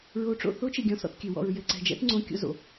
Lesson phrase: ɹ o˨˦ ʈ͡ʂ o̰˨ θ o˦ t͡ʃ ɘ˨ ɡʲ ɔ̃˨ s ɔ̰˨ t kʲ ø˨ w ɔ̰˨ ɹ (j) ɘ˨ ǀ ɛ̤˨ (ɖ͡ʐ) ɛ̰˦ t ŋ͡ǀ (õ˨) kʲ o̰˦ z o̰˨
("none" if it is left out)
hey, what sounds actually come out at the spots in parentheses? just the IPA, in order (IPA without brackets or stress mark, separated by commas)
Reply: j, d͡ʒ, õ˦